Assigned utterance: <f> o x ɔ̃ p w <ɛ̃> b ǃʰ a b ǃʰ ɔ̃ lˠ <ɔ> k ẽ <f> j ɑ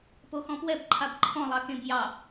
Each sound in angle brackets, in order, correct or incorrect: incorrect: p, incorrect: ɛ, incorrect: ɑ, incorrect: b

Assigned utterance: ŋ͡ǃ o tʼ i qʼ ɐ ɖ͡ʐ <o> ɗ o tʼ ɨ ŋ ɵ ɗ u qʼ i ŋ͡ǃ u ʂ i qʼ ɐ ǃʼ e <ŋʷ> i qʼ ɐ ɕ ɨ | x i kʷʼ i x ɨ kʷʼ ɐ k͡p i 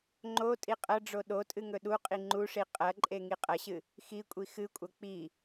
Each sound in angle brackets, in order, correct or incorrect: correct, incorrect: ŋ

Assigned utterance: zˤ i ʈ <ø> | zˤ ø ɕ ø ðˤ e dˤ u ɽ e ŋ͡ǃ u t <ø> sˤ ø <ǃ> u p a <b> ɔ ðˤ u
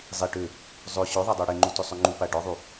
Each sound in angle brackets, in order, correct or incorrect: correct, correct, incorrect: ŋ͡ǃ, incorrect: ɖ

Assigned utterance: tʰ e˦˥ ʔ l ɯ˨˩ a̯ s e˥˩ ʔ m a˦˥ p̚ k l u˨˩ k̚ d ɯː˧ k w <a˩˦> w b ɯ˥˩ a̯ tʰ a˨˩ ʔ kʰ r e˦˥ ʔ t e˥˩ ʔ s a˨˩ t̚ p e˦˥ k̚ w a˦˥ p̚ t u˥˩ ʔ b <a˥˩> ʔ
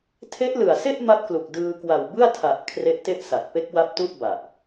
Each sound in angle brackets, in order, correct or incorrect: incorrect: a˨˩, incorrect: a˨˩

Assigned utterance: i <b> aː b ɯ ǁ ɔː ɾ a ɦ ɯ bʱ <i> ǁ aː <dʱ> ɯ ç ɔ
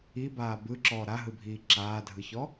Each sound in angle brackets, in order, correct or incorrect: correct, incorrect: iː, correct

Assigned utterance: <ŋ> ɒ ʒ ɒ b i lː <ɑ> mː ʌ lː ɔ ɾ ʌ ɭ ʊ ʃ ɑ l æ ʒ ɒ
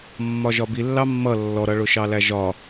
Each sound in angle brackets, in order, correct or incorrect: incorrect: mː, correct

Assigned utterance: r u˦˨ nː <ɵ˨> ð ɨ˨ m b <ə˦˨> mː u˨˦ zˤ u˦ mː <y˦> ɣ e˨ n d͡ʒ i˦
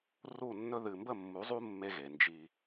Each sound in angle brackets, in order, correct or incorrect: incorrect: ɵ˦, correct, incorrect: e˦

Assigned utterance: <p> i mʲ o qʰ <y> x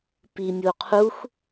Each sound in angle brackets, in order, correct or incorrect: correct, incorrect: u

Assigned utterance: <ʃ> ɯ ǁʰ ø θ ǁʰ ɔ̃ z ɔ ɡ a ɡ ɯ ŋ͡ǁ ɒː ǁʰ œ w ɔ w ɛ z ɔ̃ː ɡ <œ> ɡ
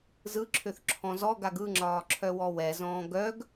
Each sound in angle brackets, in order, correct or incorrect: incorrect: z, correct

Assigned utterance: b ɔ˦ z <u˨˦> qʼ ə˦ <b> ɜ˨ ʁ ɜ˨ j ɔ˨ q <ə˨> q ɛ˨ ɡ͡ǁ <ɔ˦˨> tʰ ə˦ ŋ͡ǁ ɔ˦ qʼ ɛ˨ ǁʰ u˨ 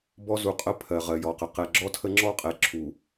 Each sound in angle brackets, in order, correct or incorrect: correct, incorrect: pʰ, correct, incorrect: ɔ˦

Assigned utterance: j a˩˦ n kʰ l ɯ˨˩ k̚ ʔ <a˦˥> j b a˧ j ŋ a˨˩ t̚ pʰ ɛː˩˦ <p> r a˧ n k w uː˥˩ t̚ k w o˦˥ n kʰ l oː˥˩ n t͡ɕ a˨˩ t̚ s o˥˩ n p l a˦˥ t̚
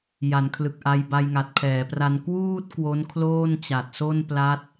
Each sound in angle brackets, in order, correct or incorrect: incorrect: a˧, correct

